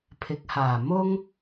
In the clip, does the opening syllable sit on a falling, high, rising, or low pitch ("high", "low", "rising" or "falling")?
rising